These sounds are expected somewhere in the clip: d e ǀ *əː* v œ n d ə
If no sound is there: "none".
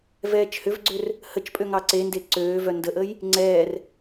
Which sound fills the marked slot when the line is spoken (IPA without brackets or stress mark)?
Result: øː